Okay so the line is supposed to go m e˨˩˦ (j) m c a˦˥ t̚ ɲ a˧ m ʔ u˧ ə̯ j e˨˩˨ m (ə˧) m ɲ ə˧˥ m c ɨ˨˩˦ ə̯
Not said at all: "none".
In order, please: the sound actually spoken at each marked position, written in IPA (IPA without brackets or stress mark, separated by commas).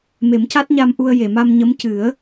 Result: none, a˧